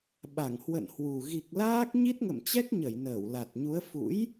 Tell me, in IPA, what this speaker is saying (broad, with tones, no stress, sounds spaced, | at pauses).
ɓ a˧˩ ŋ h w ə̰˧˨ n h w u˨˩ ɣ i˨˩ k̚ l aː˦˥ k̚ ɲ i˦˥ t̚ ŋ ə̰˧˨ m t͡ɕ ɛ˦˥ k̚ ɲ ə˧˩ j n əː˧˩ w l a˨˩ t̚ ɲ u˨˦ ə̯ f ṵ˧˥ j